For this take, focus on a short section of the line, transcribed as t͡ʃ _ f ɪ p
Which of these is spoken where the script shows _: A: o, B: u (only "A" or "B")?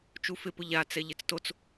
B